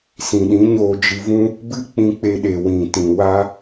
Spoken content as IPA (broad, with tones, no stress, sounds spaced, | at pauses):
s ĩ˨ ɗ ĩ˨˦ ɲ oː˧ d͡ʒ ɨ˧ v ũ˦ | b ɨ˦ k͡p ĩ˧ k͡p e˧ ɗ e˨ w ĩ˨ t ĩ˨ w a˦